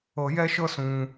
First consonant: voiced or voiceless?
voiced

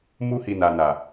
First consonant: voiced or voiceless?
voiced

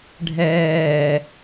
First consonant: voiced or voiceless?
voiced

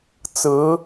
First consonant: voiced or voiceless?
voiceless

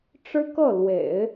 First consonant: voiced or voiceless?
voiceless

